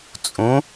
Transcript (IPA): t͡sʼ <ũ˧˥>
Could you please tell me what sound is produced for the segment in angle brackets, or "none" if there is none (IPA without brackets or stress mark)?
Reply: ũ˧˥